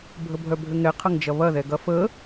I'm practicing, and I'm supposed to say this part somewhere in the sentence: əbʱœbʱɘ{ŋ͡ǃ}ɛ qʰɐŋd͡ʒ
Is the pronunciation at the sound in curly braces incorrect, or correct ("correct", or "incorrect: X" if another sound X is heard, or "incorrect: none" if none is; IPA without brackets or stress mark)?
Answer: incorrect: ŋ